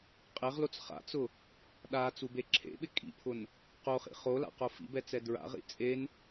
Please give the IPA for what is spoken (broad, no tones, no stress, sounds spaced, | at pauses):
qʼ e ʁ l o t͡s χ a̰ t͡s ʊ | ɗ a t͡s u b e ǁʰ ḛ ɓ ɪ kʼ ḭ pʰ ʊ n | q o χ ḭ χ o l a̰ q o f ḭ b ɛ t͡s ɛ d ɹ a̰ ʁ ḭ t͡sʼ e n